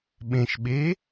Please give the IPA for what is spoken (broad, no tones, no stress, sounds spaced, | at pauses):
ɓ ẽ ʃ ɓ e